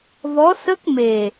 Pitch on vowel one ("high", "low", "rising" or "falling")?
rising